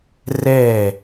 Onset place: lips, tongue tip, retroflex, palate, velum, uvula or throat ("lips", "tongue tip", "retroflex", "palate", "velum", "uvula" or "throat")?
tongue tip